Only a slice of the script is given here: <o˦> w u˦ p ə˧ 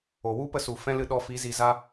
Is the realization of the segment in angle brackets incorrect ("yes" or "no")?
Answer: yes